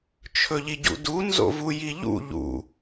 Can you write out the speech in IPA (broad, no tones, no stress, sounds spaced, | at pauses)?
t͡ʃʰ ɵ ʎ i ɟ ṵ d u n z o̰ v u j i ʎ ṵ ʎ ṵ